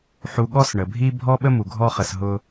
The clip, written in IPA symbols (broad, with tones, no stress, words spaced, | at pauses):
ħu˨ɠɔ˦s ɳə˩bʱi˦ bʱɔ˥ɓə˥ mu˩ɡʱɔ˦χə˨s ɦʊ˦